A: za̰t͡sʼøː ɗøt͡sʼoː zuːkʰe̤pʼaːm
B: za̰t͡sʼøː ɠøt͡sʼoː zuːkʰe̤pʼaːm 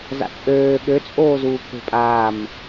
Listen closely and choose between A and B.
B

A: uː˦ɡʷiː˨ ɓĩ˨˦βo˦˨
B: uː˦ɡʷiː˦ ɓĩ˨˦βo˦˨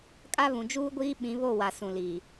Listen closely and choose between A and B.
B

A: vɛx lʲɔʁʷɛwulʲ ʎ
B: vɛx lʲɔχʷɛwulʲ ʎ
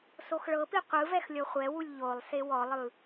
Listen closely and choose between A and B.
B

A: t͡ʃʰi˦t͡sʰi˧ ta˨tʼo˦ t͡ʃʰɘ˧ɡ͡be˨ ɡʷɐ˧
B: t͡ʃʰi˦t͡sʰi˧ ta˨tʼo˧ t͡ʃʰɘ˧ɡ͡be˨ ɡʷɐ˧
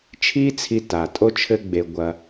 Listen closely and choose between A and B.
A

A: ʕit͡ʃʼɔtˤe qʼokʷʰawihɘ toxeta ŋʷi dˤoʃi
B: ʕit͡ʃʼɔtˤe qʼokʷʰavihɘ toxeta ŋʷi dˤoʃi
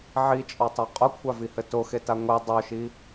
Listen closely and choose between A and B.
B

